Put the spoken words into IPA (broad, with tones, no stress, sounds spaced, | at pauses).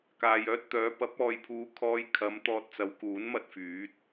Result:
k aː˨ j œː˧ t̚ t̪ œː˨˧ p ɐ˨˥ p̚ ɔː˨ j pʰ uː˨˧ kʰ ɔː˧ j kʰ ɐ˨˧ m t̪ ɔː˧ t̚ t͡s ɐ˨˧ w k uː˨˥ n m ɐ˥ t̚ f yː˨˥ t̚